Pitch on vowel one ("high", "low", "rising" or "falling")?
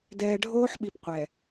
low